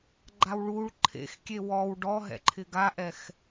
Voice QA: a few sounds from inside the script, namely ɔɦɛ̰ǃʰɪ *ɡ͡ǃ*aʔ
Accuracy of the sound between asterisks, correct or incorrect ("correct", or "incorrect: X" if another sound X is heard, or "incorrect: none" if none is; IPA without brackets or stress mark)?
incorrect: ɡ